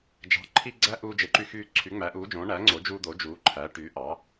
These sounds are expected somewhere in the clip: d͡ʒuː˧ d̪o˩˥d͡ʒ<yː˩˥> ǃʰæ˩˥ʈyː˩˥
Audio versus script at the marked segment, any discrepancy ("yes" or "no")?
yes